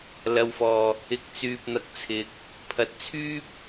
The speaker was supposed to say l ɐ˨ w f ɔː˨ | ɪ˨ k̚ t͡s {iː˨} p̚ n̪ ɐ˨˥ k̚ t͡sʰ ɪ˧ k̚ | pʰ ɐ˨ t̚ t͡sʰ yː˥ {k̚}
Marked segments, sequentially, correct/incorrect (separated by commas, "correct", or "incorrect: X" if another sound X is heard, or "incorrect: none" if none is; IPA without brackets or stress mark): incorrect: yː˨, incorrect: p̚